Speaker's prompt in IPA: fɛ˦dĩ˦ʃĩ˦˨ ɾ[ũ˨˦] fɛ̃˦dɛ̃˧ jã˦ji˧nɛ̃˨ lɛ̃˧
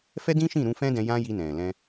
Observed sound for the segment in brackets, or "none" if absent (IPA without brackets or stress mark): ũ˧